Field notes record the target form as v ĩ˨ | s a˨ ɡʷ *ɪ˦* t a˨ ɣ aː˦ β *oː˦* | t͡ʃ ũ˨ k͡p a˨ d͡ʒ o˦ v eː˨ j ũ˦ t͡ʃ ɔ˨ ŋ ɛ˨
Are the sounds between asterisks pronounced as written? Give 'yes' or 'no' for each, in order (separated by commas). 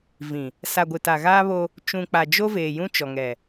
no, no